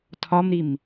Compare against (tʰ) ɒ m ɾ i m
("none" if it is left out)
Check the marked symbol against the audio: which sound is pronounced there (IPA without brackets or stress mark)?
tʰ